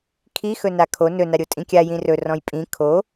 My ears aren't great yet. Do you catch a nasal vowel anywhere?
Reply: yes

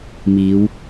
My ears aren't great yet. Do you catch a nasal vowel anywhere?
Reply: no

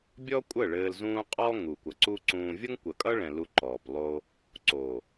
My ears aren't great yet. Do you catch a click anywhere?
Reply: yes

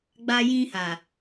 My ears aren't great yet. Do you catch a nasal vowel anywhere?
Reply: yes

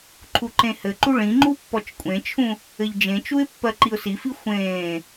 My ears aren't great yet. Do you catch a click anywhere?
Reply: yes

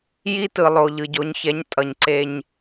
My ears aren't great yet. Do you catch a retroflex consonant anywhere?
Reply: no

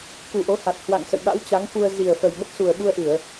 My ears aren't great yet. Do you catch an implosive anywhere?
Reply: yes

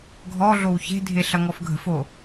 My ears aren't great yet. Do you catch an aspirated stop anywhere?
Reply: no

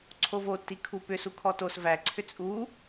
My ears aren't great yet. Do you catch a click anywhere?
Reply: yes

